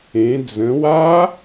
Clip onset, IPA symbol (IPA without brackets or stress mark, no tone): ẽ